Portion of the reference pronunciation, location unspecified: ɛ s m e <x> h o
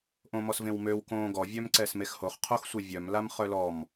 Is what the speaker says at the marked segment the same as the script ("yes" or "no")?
yes